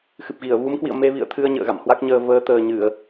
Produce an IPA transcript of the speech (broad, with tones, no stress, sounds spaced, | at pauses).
x ɨ˨˩ p̚ ɣ i˧˩ ə̯ v u˨˦ m k w ḭ˧˨ ə̯ m e˧ v ḭ˧˨ ə̯ t̪ʰ ɨ˧ ə̯ ɲ ə̰ː˧˨ ɣ a̰˧˨ m h w a˦˥ k̚ ɲ əː˧ v əː˨˦ t̪ əː˨˩ ɲ ɨ˧˩˨ ə̯